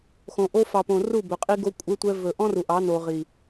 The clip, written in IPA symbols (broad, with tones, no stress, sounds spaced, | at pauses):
x õ˨ ʔ o˦ f ɑ˨ p õ˨ r u˦˨ b ɵ˨ qʼ i˦ ɡ o˦ kʷʼ e˦ tʷ ɛ˦ v ɵ˨ ʔ ɔ̃˦ r u˨ ʔ ɑ˨˦ n o˨ ʁ i˨